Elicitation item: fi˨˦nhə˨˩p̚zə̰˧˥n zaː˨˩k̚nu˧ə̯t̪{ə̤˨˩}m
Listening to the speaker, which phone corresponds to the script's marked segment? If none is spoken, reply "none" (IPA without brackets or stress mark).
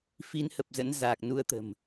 ə̤˨˩